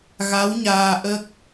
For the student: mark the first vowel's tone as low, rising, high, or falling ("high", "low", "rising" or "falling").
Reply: rising